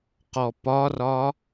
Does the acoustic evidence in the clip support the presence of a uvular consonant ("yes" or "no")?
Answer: yes